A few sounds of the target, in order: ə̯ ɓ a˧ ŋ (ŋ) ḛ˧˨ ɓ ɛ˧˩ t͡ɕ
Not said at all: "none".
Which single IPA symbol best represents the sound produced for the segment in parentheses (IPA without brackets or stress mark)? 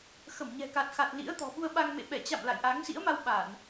m